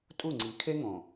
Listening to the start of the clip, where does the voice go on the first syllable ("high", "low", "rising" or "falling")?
falling